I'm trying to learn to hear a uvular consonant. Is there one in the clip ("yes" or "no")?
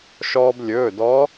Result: no